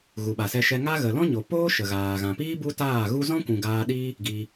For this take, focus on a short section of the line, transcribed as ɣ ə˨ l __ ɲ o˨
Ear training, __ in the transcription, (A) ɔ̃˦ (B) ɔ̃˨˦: A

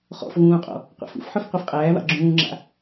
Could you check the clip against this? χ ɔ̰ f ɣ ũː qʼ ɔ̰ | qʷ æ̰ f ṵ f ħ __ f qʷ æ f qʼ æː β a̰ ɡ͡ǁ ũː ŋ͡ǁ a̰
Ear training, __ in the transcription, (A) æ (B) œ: B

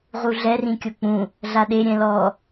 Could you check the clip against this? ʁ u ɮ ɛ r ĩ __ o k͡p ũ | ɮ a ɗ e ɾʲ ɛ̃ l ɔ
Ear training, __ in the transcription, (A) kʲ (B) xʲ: A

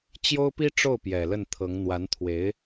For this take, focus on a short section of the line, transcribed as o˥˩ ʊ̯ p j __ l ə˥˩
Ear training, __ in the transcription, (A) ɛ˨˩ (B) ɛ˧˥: A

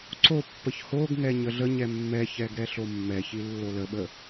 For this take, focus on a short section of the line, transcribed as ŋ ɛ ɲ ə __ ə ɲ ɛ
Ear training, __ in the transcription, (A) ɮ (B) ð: A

